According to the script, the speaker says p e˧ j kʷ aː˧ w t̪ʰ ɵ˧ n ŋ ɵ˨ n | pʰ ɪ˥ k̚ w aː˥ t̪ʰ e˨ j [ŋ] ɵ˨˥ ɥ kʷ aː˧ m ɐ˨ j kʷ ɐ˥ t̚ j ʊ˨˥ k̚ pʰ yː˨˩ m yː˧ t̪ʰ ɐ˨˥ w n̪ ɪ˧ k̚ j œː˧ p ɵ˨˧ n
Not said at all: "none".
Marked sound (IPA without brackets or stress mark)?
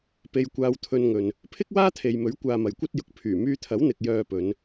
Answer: m